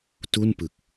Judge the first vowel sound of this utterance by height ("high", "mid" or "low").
high